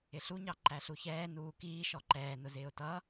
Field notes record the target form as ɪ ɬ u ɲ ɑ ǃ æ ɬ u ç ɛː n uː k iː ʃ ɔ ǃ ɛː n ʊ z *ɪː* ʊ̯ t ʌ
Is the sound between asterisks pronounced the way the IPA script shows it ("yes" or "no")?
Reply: yes